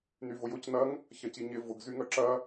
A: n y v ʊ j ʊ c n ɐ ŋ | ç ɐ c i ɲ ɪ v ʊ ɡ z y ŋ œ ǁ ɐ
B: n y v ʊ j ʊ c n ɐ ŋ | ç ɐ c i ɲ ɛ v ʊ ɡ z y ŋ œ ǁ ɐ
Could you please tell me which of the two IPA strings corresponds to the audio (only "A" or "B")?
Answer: A